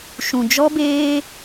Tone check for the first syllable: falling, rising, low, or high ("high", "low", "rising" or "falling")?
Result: low